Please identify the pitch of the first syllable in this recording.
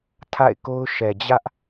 falling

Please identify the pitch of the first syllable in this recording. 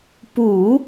low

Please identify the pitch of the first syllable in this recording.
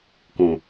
low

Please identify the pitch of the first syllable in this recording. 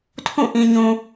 falling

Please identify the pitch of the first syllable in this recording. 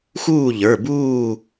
falling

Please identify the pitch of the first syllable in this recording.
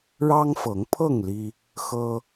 high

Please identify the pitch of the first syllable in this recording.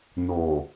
low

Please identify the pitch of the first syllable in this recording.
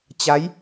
rising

